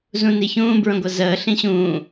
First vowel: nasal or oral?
nasal